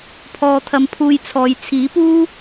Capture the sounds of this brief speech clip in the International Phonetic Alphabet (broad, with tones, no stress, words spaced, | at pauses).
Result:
pʰɔː˧t̪ʰɐ˧mpʰuː˧jt͡sʰɔː˨j t͡sʰiː˨˥puː˥